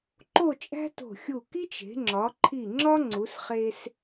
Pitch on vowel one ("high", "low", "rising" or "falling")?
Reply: falling